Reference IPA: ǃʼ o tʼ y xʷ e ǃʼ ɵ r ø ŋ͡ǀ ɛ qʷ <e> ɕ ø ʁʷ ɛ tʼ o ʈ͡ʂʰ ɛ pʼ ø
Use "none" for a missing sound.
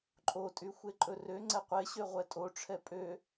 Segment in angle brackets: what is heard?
e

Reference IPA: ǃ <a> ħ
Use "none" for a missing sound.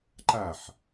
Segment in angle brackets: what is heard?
a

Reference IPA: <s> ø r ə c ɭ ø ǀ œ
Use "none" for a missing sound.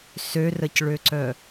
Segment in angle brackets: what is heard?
s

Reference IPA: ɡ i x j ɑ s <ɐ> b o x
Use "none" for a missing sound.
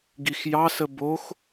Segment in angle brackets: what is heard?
ə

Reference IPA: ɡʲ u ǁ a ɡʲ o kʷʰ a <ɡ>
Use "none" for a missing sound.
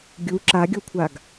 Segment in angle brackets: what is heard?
ɡ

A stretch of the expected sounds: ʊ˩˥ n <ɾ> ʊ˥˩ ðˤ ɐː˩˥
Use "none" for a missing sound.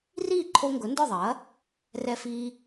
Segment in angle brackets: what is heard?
d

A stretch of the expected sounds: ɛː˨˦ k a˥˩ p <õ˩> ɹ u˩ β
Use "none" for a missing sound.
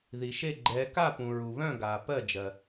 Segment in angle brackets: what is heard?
ũ˩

